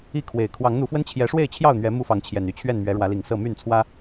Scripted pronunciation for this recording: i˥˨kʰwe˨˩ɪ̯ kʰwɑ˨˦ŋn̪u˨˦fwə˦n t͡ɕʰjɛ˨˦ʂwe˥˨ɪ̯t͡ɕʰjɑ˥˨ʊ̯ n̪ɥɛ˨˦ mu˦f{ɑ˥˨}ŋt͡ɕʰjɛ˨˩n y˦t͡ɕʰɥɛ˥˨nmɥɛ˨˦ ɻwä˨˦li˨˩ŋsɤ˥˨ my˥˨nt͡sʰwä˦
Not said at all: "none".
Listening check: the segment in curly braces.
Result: ɑ˨˦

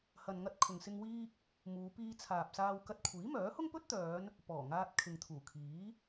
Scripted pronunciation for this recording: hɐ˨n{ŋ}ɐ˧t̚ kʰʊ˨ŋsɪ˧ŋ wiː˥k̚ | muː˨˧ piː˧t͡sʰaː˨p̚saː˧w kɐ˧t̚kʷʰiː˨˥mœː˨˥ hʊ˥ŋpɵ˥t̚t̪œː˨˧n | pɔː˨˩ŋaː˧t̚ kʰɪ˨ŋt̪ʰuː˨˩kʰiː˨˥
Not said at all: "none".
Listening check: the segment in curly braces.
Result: ŋ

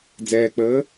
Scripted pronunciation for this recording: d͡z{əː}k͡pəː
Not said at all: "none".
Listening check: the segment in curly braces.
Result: ɛː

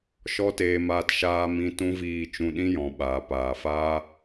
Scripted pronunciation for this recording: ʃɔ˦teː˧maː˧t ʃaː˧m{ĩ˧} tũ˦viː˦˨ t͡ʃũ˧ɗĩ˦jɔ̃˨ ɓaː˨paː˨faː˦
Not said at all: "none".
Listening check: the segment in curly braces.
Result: ĩ˧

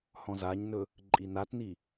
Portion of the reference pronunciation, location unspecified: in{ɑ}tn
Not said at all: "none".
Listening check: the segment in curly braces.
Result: a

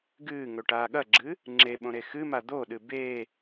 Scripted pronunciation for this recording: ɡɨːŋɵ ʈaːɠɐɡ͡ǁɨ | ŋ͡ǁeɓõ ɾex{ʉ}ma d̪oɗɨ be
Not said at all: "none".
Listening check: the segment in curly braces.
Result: ɨ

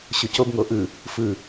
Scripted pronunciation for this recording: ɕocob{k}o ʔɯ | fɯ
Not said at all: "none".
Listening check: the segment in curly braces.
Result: ŋ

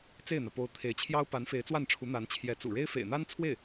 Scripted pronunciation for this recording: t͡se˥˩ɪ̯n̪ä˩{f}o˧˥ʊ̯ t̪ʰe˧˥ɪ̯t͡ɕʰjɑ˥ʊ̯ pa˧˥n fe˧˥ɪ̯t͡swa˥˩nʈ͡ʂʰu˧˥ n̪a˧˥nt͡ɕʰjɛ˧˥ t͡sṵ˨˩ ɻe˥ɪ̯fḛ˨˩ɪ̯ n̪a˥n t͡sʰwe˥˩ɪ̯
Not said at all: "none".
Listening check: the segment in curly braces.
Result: p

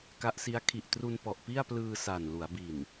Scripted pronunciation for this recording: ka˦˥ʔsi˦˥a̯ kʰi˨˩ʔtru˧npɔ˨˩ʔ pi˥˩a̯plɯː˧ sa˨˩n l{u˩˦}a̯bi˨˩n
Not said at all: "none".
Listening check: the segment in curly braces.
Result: u˩˦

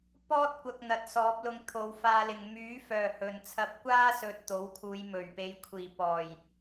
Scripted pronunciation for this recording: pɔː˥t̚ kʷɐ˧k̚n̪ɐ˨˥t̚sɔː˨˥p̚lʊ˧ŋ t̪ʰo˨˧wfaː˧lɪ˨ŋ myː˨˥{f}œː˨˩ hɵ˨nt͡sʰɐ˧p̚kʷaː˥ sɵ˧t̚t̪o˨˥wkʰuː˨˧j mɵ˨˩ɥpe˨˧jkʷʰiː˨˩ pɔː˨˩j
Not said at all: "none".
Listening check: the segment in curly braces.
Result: f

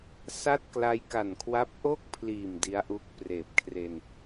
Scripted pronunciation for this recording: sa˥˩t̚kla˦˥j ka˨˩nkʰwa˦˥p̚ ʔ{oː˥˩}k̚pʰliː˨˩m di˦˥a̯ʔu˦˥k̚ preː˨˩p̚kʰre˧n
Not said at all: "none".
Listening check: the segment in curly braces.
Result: o˥˩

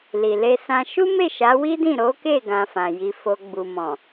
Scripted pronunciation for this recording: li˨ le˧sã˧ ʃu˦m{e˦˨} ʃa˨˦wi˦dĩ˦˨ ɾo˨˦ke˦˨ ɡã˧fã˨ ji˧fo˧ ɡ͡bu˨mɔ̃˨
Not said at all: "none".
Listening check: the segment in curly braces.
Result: e˦˨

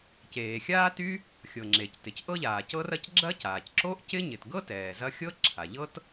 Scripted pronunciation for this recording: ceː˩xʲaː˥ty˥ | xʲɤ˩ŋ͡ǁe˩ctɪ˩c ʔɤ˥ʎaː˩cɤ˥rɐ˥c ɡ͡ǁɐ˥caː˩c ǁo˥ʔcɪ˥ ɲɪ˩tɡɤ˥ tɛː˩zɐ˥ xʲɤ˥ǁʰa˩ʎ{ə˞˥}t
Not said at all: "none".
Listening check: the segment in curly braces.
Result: ɤ˥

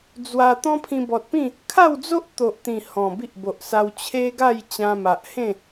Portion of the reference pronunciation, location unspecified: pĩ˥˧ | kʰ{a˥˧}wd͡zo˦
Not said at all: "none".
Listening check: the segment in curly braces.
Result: a˥˧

